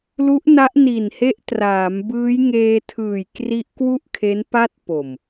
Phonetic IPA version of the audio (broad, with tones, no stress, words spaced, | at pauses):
lu˦˥ʔna˦˥ʔ ni˨˩nhe˦˥ʔtraː˩˦m bɯː˦˥j ŋeː˧tʰɯː˨˩j kri˦˥ʔkwu˥˩ʔkʰe˦˥n pa˥˩t̚po˨˩m